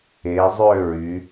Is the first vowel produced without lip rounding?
yes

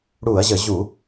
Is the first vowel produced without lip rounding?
no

